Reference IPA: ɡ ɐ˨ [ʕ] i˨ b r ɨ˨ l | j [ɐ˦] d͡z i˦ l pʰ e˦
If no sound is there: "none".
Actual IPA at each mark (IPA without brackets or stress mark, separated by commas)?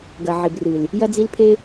ʕ, ɐ˦